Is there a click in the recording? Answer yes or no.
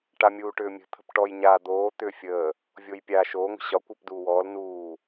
no